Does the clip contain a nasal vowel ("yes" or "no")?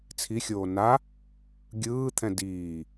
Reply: yes